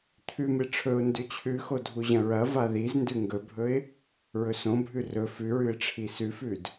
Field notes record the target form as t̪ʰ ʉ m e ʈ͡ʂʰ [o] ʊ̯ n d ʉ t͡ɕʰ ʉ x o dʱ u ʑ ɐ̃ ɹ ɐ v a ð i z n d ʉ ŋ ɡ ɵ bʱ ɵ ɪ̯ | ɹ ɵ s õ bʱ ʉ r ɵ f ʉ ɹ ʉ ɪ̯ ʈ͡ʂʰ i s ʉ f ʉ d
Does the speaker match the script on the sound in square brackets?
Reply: no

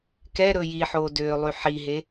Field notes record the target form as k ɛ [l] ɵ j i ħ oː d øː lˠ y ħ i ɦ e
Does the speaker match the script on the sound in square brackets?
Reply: no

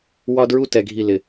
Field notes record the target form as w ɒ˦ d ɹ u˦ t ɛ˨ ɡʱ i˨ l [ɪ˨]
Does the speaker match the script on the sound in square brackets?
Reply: yes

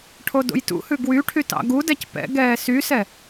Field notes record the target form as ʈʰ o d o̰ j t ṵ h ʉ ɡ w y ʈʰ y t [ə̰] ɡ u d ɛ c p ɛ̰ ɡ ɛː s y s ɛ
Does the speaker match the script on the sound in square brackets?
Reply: no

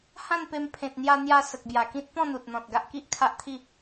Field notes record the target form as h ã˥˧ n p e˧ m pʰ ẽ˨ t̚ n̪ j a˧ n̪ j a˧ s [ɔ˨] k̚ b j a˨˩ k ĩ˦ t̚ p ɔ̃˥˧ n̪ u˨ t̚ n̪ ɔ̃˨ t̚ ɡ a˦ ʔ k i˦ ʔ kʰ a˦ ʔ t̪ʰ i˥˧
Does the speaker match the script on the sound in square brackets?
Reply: no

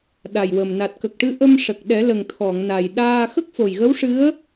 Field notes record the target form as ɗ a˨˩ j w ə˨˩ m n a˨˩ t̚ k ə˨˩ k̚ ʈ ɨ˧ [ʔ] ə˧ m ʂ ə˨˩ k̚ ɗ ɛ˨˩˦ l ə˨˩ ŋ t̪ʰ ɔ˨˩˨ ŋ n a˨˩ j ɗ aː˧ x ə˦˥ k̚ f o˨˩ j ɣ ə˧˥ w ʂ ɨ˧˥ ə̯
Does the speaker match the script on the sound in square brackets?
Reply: yes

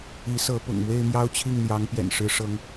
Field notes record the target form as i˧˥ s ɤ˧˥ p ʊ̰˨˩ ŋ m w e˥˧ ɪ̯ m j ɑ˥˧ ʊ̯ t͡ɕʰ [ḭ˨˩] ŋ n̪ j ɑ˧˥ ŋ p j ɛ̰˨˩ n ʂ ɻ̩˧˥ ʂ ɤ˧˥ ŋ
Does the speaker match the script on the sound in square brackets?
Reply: no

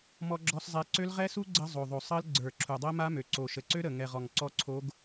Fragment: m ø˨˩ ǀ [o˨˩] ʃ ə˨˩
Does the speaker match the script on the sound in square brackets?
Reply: yes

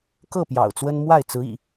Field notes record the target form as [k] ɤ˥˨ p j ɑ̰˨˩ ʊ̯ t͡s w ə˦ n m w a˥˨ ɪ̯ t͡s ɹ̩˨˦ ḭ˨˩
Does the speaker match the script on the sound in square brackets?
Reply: yes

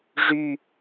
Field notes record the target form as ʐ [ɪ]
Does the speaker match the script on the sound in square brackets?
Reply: no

